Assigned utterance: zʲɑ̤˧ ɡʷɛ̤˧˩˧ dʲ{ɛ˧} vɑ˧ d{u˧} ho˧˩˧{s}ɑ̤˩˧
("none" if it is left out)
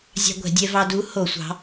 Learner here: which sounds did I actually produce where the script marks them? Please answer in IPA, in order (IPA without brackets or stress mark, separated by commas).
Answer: ɛ˧, u˨˥, sʷ